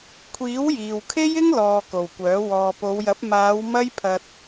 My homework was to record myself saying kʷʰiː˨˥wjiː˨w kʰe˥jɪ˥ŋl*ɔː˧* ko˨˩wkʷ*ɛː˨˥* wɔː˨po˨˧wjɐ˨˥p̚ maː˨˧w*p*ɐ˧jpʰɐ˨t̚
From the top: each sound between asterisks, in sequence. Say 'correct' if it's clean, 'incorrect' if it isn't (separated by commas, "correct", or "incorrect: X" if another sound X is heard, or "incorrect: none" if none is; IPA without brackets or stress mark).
incorrect: ɔː˨, incorrect: œː˨˥, incorrect: m